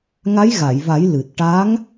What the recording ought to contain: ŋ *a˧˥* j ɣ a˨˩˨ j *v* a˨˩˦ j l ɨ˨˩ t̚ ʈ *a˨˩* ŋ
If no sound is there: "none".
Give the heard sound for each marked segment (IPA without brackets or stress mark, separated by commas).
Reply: a˧˥, v, a˧˥